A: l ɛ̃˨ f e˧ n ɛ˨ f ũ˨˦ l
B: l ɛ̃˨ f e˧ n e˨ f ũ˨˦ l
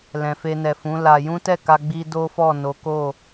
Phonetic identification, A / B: A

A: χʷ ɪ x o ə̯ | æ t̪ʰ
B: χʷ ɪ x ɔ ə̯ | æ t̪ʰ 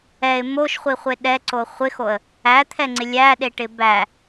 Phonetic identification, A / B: A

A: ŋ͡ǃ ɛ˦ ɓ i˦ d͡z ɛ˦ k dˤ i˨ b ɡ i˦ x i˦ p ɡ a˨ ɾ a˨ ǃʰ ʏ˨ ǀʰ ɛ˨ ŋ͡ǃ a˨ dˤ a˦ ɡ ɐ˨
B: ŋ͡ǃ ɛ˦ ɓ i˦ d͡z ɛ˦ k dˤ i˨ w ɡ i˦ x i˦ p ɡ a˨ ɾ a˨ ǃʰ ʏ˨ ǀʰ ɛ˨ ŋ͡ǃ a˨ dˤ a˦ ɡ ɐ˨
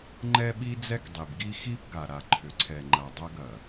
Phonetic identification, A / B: A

